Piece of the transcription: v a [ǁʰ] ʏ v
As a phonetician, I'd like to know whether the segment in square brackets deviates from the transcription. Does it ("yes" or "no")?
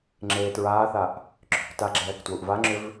yes